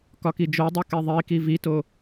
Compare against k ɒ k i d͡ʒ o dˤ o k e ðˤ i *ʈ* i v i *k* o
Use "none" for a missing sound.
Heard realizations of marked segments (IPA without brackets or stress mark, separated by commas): k, t